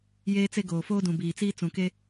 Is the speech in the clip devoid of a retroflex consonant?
yes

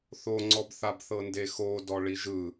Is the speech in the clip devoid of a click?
no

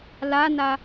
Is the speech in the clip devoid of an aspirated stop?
yes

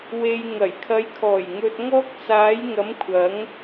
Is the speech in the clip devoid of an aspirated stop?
no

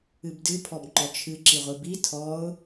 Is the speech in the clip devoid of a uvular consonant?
no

